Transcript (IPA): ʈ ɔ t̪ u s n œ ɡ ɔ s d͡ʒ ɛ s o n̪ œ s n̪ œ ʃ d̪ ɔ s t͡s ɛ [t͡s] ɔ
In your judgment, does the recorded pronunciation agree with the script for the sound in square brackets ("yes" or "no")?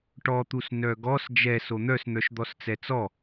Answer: yes